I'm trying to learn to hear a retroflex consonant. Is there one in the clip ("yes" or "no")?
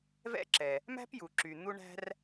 yes